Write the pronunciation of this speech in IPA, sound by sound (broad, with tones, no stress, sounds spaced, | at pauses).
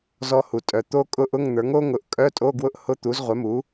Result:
z ɔ˧ h u˩ tʼ œ˩ t̪ o˦˥ kʼ ʊ˦˥ ʔ ʊ˧˥˧ ŋ n̪ ə˞˩˥ ŋ o˦˥ ŋ ʊ˩˥ ʔ kʼ œ˧˥˧ tʼ o˧˥˧ ɡ w ʊ˦˥ ʔ h ʊ˧˥˧ t̪ u˩˥ z ʁʷ œ˩˥ m u˩˥